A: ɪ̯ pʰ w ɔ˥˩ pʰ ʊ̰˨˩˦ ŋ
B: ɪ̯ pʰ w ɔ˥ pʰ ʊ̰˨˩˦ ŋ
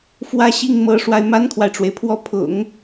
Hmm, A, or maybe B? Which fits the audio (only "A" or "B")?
A